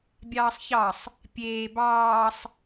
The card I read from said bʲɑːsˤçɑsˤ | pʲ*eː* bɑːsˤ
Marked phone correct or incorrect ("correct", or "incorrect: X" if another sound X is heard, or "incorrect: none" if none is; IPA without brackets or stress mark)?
correct